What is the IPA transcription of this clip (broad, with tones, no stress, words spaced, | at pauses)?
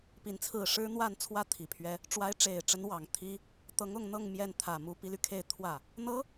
pi˧˥nt͡sʰɹ̩˥˩ ʂɻ̩˥n̪wa˥˧nt͡sʰwä˥˩ t̪ʰi˨˩pʰɥɛ˥ | ʈ͡ʂwa˧˥ɪ̯ʈ͡ʂe˨˩ɪ̯ʈ͡ʂə˧˥n wɑ˨˩ŋt̪ʰi˥ | t̪ɤ˧˥ŋʊ˥˧ŋn̪ɤ˥˧ŋ mjɛ˥˩nt̪ʰä˨˩ mu˧˥pi˧˥ly˧ kʰe˥˧ɪ̯ t̪ʰwä˥˩ | n̪ɤ˧˥